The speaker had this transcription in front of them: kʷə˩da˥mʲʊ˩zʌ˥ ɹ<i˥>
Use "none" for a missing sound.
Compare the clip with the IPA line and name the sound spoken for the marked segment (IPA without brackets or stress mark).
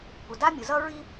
i˥